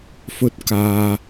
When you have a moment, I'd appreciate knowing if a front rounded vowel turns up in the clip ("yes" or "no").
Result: no